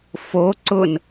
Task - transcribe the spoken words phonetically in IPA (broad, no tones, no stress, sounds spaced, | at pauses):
f o ǀ ʊ n